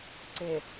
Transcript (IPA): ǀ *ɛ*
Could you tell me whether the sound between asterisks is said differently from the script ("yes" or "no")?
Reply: yes